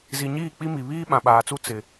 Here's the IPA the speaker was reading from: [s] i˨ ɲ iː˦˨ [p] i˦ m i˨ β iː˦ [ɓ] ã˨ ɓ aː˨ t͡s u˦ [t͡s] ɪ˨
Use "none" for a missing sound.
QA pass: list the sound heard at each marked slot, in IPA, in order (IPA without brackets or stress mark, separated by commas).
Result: z, k͡p, ɓ, t͡s